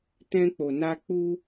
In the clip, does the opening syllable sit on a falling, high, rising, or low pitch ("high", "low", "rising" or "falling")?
high